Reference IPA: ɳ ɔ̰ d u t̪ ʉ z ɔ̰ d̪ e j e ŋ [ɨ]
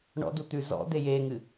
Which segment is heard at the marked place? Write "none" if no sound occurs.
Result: ɨ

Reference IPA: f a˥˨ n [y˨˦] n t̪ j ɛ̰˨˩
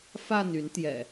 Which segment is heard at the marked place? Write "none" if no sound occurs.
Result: y˨˦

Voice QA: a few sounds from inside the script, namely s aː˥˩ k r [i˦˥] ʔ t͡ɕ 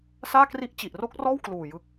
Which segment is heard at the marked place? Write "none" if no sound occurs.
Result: i˥˩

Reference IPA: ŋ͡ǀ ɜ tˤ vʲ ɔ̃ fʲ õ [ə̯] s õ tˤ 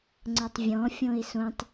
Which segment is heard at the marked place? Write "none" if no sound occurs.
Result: ɪ̯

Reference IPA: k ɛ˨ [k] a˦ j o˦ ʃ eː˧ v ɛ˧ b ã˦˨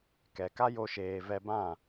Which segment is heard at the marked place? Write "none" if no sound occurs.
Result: k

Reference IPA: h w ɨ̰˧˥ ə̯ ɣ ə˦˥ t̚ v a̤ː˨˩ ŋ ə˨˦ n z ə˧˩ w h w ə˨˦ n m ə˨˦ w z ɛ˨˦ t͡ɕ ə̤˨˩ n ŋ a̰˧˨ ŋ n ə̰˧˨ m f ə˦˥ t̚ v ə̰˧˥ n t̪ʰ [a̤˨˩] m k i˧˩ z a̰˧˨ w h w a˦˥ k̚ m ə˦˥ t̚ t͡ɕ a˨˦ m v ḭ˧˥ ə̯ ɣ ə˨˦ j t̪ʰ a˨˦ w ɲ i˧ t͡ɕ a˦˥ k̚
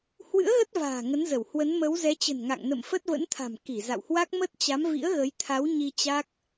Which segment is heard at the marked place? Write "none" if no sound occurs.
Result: a̤˨˩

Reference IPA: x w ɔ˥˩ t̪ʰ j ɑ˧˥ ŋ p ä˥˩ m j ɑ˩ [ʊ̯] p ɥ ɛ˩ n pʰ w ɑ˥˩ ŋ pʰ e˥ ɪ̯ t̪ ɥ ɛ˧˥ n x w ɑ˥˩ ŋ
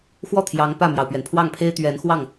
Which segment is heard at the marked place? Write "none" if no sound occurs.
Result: ʊ̯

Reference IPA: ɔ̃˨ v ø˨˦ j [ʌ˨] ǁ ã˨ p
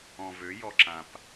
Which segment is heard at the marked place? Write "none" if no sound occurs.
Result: ɔ˨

